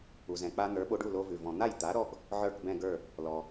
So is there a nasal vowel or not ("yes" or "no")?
yes